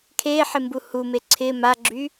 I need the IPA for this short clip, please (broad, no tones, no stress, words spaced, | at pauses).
kʰeħɪ mbuhume ǀʰɪ maɡ͡ǁy